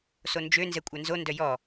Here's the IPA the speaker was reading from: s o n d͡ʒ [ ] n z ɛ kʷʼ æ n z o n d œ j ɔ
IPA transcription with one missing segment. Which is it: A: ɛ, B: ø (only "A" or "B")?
B